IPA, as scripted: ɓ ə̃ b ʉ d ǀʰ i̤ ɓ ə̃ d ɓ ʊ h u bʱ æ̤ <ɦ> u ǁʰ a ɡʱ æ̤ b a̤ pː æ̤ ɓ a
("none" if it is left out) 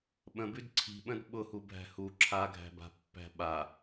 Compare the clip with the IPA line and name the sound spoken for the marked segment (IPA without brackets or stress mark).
h